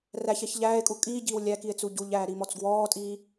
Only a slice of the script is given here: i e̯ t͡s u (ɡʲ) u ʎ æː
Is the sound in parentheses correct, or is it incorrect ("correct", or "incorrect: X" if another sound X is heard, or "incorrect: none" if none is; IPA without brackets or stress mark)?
incorrect: ɟ